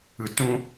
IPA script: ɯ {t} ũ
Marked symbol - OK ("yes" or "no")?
yes